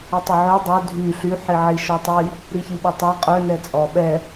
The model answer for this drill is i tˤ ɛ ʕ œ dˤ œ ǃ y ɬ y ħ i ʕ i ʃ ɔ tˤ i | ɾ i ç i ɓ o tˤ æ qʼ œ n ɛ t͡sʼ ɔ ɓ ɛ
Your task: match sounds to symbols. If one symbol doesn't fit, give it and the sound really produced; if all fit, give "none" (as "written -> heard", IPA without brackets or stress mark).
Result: ǃ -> dʱ